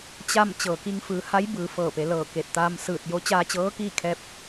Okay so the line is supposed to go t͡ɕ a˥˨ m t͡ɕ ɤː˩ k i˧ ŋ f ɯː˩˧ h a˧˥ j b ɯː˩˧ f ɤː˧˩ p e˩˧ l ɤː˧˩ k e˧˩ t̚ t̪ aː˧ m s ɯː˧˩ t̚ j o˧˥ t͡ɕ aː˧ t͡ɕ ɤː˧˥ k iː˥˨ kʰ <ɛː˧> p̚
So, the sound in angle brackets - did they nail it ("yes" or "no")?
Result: yes